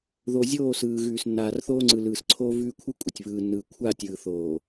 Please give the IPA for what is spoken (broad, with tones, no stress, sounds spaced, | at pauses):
ð o˨ zʲ oː˦˨ s ɯː˨ ɣ ʉː˨ s nː aː˨ r θ oː˦ ŋ͡ǀ ɯ˨ l ɯː˨ s ǀʰ oː˦ v ʉː˦ kʷʰ ɯ˦ kʷʼ ə˨ tʲ β ɯː˨ nː ɯː˨ kʷʰ a˦˨ tʲ ɯː˨ θ oː˨